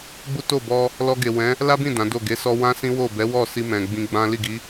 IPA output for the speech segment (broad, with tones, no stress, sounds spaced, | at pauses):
ɡ͡b u˦ t o˦˨ b ɔ˧ | l ɔ˧ ɡ e˨ w ɛ̃˨˦ | l a˦ b ĩ˦˨ d ã˨˦ d o˦˨ ɡ e˨˦ s ɔ˧ w ã˦ s ĩ˦ w o˦˨ b ɛ˨˦ w ɔ˦˨ s i˧ m ɛ̃˨ ɡ͡b ĩ˧ ɡ͡b ã˦ l i˦˨ ɡ i˨˦